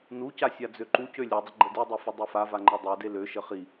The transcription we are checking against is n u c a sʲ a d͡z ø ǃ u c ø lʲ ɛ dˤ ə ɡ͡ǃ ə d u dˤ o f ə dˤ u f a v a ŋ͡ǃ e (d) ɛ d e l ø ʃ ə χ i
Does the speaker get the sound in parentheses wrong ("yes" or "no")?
yes